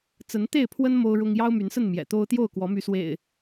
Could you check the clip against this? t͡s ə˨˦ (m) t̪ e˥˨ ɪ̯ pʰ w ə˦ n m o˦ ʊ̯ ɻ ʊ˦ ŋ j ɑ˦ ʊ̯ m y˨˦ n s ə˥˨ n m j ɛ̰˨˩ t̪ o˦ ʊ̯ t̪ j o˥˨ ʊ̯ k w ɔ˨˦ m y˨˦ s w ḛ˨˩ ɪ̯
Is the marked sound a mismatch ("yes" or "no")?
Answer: yes